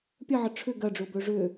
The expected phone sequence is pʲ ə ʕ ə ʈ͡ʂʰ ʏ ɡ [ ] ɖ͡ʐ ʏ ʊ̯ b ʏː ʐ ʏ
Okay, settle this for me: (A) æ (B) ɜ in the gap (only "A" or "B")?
B